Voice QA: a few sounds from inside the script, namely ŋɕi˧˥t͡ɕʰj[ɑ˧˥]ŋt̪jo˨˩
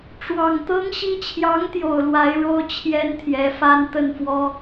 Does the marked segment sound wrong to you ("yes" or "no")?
no